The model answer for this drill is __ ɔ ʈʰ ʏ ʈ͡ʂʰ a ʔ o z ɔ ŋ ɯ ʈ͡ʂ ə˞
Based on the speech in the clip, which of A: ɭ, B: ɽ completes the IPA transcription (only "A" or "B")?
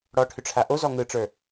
B